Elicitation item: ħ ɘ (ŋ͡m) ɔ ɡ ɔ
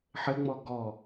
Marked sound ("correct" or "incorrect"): correct